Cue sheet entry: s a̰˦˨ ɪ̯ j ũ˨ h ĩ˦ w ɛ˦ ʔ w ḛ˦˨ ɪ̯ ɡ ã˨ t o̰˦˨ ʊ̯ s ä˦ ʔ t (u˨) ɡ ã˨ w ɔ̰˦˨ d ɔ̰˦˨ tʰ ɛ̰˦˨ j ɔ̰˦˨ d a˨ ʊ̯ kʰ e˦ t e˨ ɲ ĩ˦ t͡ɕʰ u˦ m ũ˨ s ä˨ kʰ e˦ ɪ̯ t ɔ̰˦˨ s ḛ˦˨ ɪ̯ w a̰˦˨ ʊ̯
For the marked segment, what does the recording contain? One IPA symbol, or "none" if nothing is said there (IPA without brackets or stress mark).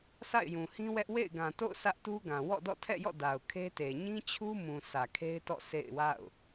u˦